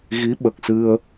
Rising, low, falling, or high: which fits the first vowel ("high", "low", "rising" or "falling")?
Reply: rising